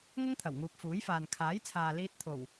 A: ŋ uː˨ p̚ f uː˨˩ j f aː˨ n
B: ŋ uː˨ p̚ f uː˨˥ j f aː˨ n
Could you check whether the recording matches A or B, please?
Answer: B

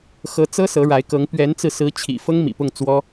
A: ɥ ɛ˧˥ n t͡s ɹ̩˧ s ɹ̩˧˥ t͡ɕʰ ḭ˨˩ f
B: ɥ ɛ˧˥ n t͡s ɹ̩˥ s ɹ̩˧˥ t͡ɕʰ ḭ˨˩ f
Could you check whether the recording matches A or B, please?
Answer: A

